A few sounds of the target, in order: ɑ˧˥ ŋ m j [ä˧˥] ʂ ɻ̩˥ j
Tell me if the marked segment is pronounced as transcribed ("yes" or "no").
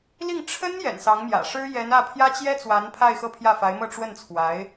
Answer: no